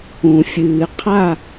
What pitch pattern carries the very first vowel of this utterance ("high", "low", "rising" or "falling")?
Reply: low